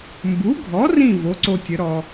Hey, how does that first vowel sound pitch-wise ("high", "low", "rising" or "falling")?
rising